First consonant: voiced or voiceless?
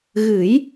voiced